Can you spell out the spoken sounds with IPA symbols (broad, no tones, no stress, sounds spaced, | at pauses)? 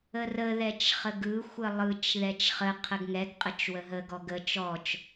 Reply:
ə r ə ð ɛ t͡ʃ χ ə ɡ ɯ xʷ ə lˠ ɯ t͡ʃ ð ɛ t͡ʃ χ ə qʰ ə ɡ ŋ ɛ ɡ qʼ ə t͡ʃ w ə ɦ ə ɡ ɔ ɡ ə t͡ʃ ɔ t͡ʃ